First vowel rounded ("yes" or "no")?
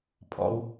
yes